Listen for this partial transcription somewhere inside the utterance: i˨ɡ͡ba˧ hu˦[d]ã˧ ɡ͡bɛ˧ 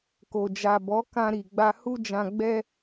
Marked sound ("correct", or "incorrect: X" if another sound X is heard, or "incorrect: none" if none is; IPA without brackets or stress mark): incorrect: d͡ʒ